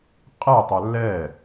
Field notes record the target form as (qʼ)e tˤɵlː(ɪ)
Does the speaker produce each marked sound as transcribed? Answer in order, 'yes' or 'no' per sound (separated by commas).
yes, no